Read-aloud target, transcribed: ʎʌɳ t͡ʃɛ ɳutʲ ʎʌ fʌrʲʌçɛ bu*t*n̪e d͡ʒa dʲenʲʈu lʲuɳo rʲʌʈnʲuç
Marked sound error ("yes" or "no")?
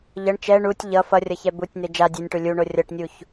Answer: yes